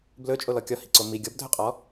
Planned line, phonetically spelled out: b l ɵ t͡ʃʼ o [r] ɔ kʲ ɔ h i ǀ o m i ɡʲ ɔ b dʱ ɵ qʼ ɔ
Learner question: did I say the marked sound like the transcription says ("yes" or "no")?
no